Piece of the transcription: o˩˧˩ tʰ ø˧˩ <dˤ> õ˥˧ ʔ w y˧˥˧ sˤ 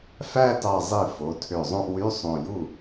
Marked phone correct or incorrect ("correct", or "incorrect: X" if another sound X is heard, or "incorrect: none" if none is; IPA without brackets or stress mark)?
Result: incorrect: zˤ